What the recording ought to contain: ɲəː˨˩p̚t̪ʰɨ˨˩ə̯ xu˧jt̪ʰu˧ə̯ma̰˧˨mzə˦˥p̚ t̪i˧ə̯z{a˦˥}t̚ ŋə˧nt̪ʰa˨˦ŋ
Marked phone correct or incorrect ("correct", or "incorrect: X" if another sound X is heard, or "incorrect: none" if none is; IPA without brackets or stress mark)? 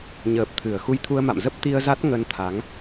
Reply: correct